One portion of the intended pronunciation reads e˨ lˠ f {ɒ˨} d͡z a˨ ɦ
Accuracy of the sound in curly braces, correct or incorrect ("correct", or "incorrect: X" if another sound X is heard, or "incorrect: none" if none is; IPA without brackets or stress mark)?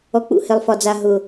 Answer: correct